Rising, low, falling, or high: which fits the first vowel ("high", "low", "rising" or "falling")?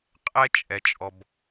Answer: high